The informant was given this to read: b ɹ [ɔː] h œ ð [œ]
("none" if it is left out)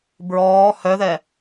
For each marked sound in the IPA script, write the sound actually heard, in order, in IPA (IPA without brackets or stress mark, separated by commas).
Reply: ɔː, ɛ